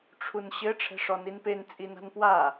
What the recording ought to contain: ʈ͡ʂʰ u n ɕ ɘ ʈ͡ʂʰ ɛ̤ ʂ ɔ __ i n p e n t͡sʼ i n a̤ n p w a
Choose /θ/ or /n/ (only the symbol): n